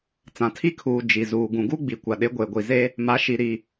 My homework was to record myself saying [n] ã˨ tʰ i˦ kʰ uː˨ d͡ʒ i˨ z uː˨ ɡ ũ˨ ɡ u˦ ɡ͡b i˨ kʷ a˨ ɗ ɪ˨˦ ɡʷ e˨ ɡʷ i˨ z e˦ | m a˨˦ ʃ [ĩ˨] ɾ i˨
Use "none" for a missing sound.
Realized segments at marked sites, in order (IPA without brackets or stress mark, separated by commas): t͡s, i˨